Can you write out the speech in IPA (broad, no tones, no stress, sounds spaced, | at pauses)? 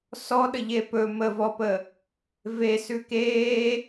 s ɔ ɗ ə ʎ e p ɵ m ə v ɔ p ə | v e s ʉ k eː